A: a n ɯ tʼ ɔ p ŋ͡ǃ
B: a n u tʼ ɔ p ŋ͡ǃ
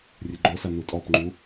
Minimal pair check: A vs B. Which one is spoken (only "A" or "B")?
B